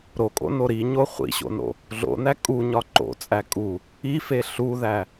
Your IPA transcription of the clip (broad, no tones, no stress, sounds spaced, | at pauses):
ɾ o kʼ o̰ n o ɾ i ɲ o χʷ ḭ ɕ o̰ n o̰ | ɮ o̰ n æ kʼ u ɲ ɒ ǃ o̰ t͡sʼ æ kʼ u | i f e ɬ u ð æ